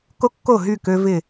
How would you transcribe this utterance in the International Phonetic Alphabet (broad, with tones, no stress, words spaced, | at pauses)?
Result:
ko˦kːo˦˨ɦy˦˨ kø˦vɪ˦˨